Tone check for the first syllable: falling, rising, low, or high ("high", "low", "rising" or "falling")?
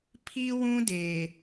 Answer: high